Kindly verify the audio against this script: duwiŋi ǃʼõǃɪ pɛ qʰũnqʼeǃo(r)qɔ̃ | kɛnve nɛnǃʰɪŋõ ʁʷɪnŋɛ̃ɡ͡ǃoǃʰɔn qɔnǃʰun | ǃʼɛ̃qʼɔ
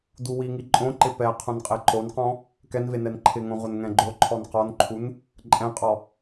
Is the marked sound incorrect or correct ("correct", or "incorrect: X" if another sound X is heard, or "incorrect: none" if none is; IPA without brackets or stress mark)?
incorrect: n